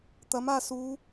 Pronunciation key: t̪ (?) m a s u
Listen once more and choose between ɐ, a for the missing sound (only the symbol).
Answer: ɐ